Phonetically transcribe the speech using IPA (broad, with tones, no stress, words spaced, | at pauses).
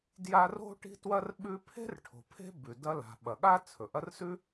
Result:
dja˦ro̤˥ ʈi̤˦twɐ˦r ɓʉ˦ pʰe̤˥rʈʰo̤˨ pʰe̤˦bʉ˩ dɐ˦la̤˩ ɓɐ˩ɠa˥t͡sʰɵ˩ ʔɐ˦rsʉ˥